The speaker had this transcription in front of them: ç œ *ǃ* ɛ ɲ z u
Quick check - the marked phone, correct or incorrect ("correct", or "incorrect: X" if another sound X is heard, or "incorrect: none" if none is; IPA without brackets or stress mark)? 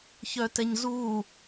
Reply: incorrect: t